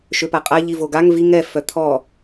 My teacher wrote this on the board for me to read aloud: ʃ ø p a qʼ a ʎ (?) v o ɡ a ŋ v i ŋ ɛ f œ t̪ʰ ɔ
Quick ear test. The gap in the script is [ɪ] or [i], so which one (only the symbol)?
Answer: i